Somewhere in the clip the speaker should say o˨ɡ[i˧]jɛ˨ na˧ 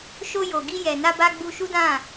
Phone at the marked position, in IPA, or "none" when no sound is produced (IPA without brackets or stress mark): i˧